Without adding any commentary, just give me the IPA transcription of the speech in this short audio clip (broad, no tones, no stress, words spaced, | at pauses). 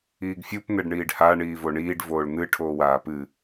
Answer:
iːɡfʲup n̪ɛɖɳiːɖha ɳiːvoɳiːɖ voːɭn̪ɨ ʈʰoːwaːpɨ